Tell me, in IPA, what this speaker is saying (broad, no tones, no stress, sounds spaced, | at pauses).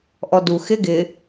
ʔ ɔ d u x ɪ ɡ ɪ